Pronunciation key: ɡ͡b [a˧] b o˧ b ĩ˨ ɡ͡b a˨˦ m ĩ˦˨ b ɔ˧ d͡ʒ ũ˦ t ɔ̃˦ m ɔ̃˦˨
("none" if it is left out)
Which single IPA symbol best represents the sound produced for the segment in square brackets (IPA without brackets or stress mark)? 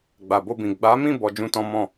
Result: a˨